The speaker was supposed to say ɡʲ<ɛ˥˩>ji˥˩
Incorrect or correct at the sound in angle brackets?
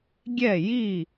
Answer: correct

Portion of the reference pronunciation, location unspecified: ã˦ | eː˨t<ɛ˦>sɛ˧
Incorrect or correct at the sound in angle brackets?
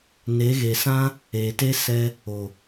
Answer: incorrect: e˦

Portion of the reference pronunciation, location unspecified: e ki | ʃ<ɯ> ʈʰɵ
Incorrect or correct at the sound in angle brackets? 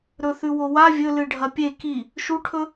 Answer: incorrect: u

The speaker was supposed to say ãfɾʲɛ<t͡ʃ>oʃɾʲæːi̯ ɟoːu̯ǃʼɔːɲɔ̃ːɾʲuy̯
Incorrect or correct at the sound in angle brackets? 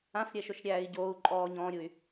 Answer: incorrect: ʃ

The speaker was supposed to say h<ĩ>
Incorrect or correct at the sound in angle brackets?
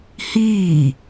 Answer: incorrect: i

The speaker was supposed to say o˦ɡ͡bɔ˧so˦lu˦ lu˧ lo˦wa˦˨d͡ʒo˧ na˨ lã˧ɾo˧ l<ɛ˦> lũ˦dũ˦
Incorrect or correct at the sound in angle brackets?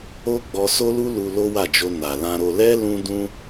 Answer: correct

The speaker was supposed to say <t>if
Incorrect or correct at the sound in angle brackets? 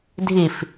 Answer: incorrect: dʱ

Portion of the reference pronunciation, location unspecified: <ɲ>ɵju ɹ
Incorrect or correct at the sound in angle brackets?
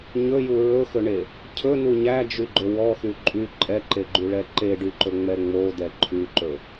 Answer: correct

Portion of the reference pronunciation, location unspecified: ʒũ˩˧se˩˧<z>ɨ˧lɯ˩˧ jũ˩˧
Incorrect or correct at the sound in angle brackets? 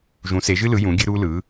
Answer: incorrect: ʒ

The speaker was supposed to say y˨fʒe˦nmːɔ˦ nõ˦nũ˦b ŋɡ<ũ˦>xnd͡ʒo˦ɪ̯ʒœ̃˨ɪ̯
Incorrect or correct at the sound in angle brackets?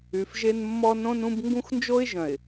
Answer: correct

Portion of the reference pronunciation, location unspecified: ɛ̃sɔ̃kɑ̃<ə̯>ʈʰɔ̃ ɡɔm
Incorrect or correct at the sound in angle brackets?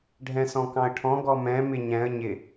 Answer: correct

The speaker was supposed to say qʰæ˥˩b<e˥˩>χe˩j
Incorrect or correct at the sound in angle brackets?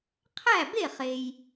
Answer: correct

